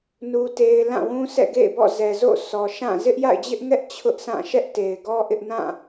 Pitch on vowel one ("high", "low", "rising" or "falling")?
high